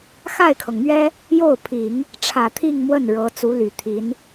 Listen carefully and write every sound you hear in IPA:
x a˥˩ ɪ̯ kʰ ɤ˩ ŋ m ɥ ɛ˥ | j o˥˩ ʊ̯ pʰ i˨˩˦ ŋ | ʈ͡ʂʰ ä˨˩ t̪ʰ i˥˧ ŋ m w ə˥˩ n ɻ ɤ˧˥ t͡s u˧˥ l y˨˩ t̪ʰ i˧˥ n

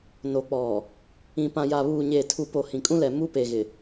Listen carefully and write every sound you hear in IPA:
n o˨ k͡p ɔ˨ | ĩ˨ p ã˨ j a˨ β uː˨ ɲ eː˨ tʰ u˨ p o˨ h ĩ˨ kʼ ũ˦ l ɛ˨ m u˦ p e˨ ɣ ɪ˨

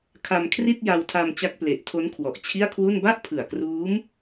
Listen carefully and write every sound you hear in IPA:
kʰ a˧ m kʰ r i˥˩ t̚ j a˧ w tʰ a˧ m t͡ɕ a˦˥ k̚ p l e˨˩ ʔ tʰ o˦˥ n kʰ w ɔ˨˩ ʔ t͡ɕʰ i˥˩ a̯ kʰ w u˥˩ n b a˥˩ ʔ pʰ ɯ˨˩ a̯ k r uː˦˥ m

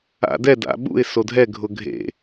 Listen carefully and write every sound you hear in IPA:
a̰ d ɛ d a̰ ɓ ṵ ɪ̯ s o dʱ ɛ ɡʱ ʊ ɡʱ ḛ

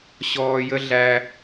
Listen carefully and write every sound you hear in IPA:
ɕ ɔː˧ j ə˦ ɮ æ˧

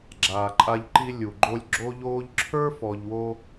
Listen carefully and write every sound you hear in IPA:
ɡ͡ǁ aː˨ ǃʼ a˧ ʎ ǃ i˧ lʲ u˨ ɡ͡ǃ o˧ lʲ ɡ͡ǁ o˧ ʎ oː˧ ʎ ǁʰ ə˞˦ f ɔ˧ ʎ w o˦

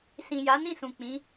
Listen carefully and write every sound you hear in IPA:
s ĩ˨ j a˨˦ n ĩ˦˨ s ũ˨ k͡p ĩ˨˦

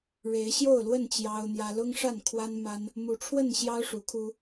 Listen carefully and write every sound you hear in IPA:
ɻ e˨˦ ɪ̯ ɕ j o˥˨ ʊ̯ l w ə˥˨ n t͡ɕ j ɑ˦ ʊ̯ n̪ j ä˦ l ʊ˦ ŋ ʂ a˥˨ n kʰ w a˦ n m a˦ n | m u˨˦ ʈ͡ʂʰ w ə˥˨ n ɕ j ɑ˦ ʊ̯ ʂ u˨˦ kʰ u˦

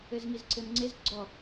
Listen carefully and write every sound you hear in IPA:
ɘ z ŋ i z ǀ ɘ m ŋ͡ǀ e z ɡ͡ǀ ɔ

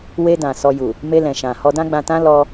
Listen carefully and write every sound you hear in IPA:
w e˧ d ã˨ s ɔ˧ j u˨ | m e˧ l ɛ̃˨ ʃ ã˨ h ɔ˧ d ã˦ ɡ͡b ã˧ t ã˦ l ɔ˧

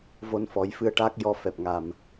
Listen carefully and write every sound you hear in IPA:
v o˧ n f ɔ˨˩˦ j f ɨ˧ ə̯ ʈ aː˦˥ k̚ j ɔ˧ f ɛ˨˩ p̚ ŋ a˨˩ m

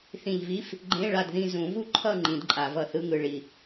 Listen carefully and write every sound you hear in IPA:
θ ĩ˨˩ ʎ v i˧˥˧ f | ɡ͡ǃ ẽ˧˥˧ ɭ a˦˨ d ð ĩ˦˨ z ũ˨˩˦ v u˦˨ ǃʰ ʌ˦˨ ŋ͡ǃ ĩ˨˩˦ d ǃʼ a˨˩˦ v ʌ˦˨ θ ɯ˧˥˧ ŋ ɯ˨˩ ɭ i˨˩

